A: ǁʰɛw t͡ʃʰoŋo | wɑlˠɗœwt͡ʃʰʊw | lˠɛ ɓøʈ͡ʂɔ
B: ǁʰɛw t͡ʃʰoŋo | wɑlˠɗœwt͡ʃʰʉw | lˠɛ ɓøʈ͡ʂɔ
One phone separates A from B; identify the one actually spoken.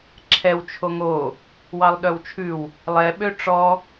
B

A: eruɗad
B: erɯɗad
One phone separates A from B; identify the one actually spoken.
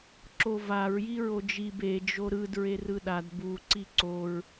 B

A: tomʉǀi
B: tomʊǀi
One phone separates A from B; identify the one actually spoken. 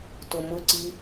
B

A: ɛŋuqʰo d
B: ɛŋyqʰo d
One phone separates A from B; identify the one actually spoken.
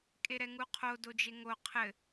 A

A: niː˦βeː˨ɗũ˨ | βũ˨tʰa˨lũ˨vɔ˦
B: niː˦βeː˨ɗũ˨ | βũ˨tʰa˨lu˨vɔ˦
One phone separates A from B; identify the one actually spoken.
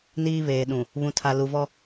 B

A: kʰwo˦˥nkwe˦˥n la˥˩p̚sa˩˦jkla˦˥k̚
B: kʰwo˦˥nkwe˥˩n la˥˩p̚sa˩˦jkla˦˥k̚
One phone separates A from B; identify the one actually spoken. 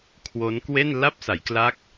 B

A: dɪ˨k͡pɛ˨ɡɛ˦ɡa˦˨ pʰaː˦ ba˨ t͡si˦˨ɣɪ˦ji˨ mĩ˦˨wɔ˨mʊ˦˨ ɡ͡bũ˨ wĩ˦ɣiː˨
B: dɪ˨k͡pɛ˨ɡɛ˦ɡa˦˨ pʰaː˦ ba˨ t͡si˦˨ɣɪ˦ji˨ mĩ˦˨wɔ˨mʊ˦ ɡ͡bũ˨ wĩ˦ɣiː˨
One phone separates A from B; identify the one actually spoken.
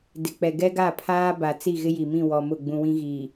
A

